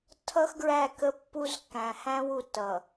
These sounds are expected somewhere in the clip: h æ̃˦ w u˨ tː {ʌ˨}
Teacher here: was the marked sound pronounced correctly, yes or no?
yes